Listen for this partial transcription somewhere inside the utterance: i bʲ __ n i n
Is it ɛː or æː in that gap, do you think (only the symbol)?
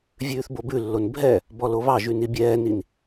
ɛː